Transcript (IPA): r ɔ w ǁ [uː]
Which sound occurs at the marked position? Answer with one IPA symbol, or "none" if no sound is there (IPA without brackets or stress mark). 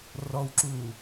uː